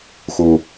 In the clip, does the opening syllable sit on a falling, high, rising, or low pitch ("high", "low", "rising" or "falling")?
low